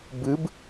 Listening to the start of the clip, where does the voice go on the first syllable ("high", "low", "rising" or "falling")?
rising